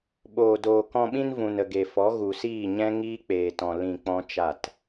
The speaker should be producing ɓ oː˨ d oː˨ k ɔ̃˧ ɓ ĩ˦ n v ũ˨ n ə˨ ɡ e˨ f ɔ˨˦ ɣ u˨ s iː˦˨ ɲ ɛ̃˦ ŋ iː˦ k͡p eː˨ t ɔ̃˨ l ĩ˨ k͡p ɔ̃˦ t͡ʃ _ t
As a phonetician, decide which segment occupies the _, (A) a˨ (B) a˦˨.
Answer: B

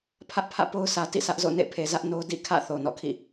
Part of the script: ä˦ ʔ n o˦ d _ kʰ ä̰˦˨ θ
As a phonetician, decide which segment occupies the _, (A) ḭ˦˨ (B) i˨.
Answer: A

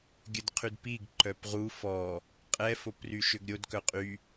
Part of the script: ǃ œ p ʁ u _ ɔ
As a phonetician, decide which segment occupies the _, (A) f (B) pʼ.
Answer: A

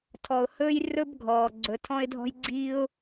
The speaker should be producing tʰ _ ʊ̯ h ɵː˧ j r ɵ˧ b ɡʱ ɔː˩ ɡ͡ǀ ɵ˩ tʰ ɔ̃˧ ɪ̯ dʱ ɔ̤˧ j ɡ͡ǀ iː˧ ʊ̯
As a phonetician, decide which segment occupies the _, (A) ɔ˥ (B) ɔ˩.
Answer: B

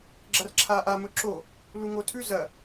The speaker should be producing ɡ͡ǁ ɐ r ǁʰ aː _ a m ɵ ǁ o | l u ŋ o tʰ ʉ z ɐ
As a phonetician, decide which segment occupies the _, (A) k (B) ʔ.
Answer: B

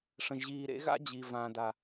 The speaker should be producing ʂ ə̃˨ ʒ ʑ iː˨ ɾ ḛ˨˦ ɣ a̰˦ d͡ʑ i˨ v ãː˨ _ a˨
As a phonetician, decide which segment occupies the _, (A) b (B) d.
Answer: B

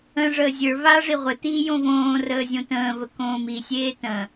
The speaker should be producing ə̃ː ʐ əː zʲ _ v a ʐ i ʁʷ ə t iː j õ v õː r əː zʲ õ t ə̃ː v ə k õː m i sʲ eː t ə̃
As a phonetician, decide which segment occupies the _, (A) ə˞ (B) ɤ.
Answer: A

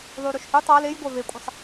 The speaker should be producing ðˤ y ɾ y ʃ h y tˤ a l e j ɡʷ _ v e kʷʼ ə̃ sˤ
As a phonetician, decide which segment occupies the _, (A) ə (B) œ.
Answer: B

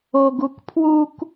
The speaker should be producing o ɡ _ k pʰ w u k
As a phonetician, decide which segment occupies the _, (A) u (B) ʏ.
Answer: A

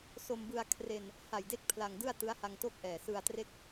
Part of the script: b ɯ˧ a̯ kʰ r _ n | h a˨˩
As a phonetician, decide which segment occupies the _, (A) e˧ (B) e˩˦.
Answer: A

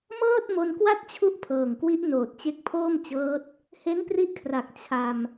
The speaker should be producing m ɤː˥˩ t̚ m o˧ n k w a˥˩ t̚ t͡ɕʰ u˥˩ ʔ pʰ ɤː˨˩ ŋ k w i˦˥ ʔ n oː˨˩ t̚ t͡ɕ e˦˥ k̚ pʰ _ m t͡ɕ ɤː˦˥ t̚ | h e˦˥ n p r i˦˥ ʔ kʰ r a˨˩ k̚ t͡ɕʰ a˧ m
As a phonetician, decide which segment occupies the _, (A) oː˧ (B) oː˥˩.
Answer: B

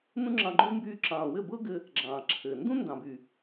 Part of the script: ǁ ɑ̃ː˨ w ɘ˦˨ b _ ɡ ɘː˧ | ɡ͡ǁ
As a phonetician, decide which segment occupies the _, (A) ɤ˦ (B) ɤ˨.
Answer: A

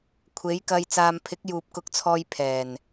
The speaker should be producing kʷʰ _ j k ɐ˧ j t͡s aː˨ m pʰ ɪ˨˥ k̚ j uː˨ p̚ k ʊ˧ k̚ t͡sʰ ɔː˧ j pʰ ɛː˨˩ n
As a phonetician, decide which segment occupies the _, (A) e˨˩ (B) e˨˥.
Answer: B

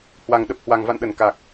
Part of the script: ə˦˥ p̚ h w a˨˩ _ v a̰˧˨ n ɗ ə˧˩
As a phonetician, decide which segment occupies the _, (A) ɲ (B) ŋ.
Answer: B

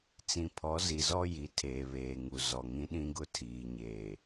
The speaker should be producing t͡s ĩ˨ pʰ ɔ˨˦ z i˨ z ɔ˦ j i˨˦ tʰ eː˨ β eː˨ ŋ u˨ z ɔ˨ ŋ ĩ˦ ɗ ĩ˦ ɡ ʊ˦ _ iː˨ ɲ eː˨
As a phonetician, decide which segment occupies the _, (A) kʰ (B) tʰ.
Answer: B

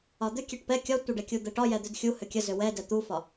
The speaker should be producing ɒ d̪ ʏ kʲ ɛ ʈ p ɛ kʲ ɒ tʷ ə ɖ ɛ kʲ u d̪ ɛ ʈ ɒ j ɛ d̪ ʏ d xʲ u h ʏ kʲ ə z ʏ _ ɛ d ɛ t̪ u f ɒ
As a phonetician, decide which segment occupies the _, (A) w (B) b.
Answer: A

